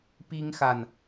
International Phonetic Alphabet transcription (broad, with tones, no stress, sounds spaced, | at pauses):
p i˥ ŋ x a˨ n